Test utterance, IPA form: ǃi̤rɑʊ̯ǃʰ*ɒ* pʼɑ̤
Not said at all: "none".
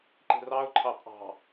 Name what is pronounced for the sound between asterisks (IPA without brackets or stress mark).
ɑ